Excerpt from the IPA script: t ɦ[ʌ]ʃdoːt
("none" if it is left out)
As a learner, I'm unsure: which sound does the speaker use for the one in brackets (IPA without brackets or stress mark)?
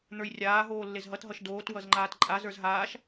ʌ